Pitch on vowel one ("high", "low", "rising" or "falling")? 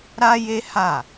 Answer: high